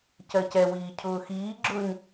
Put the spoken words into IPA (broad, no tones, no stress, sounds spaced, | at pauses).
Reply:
c ɜ c ɛ w iː cʰ ʊː x iː ɡ͡ǁ ʊː ɲ